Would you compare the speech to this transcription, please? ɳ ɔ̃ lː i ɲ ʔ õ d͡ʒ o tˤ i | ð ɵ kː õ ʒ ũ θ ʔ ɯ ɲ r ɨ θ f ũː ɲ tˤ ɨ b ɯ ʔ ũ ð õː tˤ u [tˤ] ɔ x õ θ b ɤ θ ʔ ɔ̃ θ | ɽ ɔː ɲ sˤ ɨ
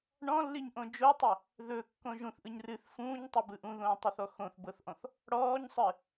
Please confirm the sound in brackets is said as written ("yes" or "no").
no